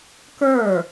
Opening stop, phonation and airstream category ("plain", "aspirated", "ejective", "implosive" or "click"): plain